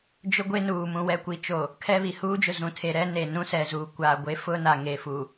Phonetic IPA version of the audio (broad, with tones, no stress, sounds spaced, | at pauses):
d͡ʒ ʊ˦ ɡʷ e˦ n uː˨ m ũ˨ w ɛ˨ kʷ i˨ t͡ʃ o˨ | kʰ ɛ˦ β i˨ h uː˦ d͡ʒ ʊ˨ z ũ˨ tʰ e˨ ɾ ɛ˦ n e˨ n ũ˦ s ɛ˨ z uː˨ kʷ a˨ ɡʷ e˦ f ʊ˦ n a˨ ŋ e˨ f u˨